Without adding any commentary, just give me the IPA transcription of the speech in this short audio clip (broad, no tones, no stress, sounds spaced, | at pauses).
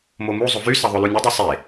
m o m u zˤ o v y s ɑ ðˤ ø l u nʲ ø dˤ y sˤ e